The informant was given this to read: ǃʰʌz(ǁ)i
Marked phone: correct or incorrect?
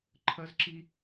correct